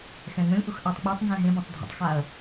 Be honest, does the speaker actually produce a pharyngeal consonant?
no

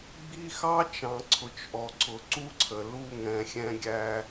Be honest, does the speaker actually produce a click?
yes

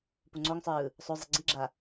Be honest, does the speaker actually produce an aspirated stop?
no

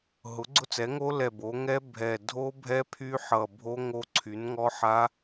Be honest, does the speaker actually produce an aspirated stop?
yes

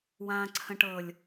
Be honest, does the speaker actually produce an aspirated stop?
yes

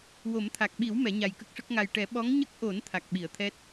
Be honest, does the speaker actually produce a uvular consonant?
no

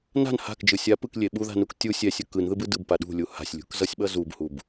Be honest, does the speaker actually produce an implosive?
yes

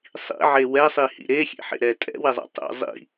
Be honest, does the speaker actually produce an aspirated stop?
no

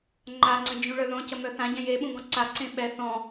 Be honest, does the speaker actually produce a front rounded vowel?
yes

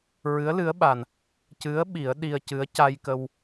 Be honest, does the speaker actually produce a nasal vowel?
no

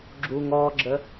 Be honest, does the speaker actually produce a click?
yes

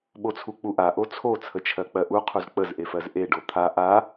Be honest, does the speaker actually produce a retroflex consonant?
yes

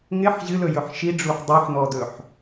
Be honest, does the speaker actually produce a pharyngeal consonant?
yes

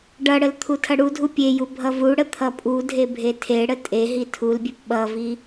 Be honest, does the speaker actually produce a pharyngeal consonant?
no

